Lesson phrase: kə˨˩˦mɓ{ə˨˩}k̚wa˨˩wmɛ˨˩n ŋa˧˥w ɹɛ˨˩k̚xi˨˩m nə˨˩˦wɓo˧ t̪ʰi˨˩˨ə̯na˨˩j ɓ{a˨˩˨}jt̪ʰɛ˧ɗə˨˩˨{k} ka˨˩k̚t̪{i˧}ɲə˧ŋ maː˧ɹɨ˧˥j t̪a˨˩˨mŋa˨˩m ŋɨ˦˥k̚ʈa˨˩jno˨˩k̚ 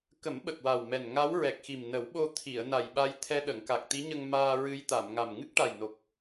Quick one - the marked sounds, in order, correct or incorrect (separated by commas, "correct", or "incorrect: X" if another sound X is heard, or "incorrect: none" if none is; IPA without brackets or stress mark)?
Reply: correct, incorrect: a˧, incorrect: ŋ, incorrect: i˧˥